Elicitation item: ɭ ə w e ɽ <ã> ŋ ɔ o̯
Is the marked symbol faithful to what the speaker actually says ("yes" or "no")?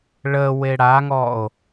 no